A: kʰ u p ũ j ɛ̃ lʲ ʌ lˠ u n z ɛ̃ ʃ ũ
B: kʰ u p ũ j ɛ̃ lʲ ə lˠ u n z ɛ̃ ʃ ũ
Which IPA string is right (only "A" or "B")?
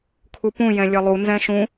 A